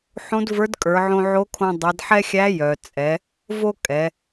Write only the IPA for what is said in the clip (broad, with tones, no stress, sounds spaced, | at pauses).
ħ õ˧˥ d v ə˞˧˥ d kʼ ə˞˩˧ ʕ õ˧ ʕ o˧˥ kʰ õ˧ dˤ i˩˧ d ħ ɛ˥ xʲ æ˧˥ j œ˩ t͡sʼ ɛ˩˧ | v o˥ kʼ ɛ˩˧